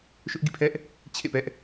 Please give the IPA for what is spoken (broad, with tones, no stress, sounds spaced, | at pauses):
ʃ ʊ˦ ʔ ɡ ḭ˦˨ pʰ ɛ˦ ʔ | t͡ɕʰ ḛ˦˨ p ɛ˦ ʔ